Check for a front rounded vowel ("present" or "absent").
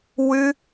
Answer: absent